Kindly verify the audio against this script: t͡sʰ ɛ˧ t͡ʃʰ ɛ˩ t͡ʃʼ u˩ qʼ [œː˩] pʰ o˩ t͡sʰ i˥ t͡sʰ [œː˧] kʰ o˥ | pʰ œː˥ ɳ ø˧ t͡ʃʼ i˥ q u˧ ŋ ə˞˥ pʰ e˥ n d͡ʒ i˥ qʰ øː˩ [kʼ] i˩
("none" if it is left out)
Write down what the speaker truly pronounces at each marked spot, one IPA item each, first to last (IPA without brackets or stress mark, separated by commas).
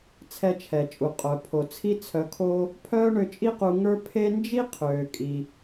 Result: œ˩, œ˧, kʼ